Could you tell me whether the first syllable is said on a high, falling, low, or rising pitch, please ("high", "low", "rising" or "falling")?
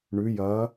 rising